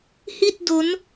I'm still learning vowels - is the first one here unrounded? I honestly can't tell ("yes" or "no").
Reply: yes